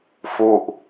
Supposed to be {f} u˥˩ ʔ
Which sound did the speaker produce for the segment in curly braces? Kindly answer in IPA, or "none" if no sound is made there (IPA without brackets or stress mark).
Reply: f